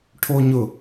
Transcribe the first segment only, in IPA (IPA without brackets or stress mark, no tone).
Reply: ʈʰ